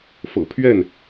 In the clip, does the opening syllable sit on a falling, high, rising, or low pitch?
low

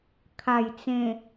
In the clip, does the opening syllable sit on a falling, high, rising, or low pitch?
low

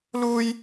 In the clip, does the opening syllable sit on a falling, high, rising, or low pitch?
high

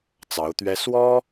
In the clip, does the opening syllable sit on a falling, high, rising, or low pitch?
rising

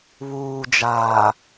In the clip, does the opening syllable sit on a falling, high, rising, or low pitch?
low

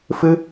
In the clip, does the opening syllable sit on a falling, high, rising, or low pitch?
high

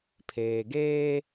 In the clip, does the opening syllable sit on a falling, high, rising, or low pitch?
low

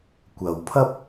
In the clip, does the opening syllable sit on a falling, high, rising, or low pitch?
low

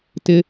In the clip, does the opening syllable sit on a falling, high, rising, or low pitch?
high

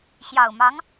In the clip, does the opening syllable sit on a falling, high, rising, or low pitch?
low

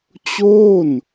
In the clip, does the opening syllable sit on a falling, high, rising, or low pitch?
falling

